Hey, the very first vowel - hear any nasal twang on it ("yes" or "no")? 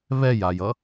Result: no